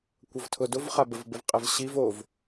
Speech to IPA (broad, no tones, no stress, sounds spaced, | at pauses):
kʷ ʌ v tʰ ʊ d ʊ v χ a b ə v b ə v qʼ ɛ v ɕ i v o v